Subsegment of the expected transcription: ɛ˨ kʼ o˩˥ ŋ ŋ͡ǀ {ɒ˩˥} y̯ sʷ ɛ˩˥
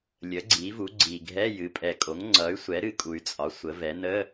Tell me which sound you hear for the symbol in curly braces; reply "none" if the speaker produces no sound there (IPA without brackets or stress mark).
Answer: ʌ˩˥